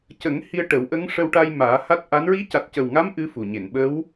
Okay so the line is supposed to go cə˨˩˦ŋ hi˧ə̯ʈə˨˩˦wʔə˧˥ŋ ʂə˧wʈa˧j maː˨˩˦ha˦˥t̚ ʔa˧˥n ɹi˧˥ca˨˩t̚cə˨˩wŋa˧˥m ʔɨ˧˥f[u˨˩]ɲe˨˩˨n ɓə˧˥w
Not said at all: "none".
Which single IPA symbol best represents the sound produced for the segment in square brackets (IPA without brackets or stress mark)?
u˨˩